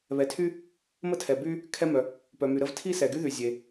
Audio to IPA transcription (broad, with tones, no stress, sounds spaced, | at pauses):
β ɛ˩ tʰ y˥ | m ə˥ tʰ ɛ˩ b y˥ | kʰ ɛ˥ m œ˩ | p œ˩ m y˩ ɾ ə˥ v tʰ i˥ s ɛ˩ ɡ y˥ ð y˩ zʲ e˩